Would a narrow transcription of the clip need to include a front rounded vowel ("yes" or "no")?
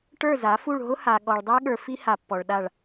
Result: no